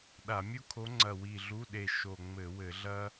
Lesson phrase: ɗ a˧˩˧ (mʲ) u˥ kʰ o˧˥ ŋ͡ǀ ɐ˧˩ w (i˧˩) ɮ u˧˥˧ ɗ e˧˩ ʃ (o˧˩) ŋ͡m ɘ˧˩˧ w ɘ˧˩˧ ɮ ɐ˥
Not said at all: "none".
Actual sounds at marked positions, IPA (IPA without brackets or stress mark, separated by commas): mʲ, i˧˩, o˧˩